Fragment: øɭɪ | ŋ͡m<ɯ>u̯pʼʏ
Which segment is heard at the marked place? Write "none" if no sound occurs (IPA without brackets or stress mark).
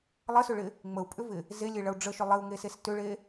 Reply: ə